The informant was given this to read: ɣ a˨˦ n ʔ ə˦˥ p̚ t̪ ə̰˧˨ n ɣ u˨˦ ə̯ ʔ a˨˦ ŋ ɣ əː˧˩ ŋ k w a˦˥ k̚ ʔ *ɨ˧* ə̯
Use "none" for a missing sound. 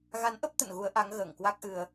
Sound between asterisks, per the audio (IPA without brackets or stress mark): ɨ˧